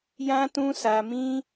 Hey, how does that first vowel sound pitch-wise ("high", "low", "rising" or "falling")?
high